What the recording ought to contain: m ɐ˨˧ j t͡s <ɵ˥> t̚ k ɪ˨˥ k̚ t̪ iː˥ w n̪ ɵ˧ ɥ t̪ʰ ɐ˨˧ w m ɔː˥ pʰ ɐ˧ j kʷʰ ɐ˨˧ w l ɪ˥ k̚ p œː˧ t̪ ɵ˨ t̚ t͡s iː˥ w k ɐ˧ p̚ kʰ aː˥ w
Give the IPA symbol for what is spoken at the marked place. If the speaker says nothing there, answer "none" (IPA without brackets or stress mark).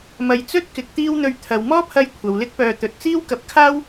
ɵ˥